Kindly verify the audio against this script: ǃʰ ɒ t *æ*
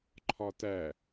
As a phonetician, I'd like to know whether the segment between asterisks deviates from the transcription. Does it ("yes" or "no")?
no